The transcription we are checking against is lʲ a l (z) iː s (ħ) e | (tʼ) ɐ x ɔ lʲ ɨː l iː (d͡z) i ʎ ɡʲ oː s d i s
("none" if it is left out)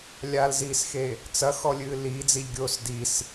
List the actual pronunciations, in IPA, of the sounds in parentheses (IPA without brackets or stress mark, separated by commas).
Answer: z, x, t͡s, d͡z